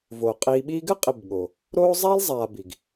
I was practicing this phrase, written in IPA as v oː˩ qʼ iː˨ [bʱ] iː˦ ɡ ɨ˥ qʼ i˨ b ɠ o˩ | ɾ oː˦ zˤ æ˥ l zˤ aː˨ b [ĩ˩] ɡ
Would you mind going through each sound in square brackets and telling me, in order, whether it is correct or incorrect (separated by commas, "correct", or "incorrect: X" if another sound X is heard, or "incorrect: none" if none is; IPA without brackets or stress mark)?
incorrect: ɓ, incorrect: i˩